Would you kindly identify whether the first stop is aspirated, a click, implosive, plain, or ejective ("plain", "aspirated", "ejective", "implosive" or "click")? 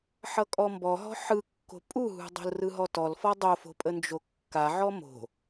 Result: ejective